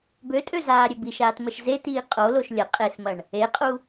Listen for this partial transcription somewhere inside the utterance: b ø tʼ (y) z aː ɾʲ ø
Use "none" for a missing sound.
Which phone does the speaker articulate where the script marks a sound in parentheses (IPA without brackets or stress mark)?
ø